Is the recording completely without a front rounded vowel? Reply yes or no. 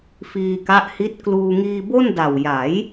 yes